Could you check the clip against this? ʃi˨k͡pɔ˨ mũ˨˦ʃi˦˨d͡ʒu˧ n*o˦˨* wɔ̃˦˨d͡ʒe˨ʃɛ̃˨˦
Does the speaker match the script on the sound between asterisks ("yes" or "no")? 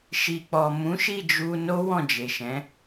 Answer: no